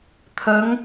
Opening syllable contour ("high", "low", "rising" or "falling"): rising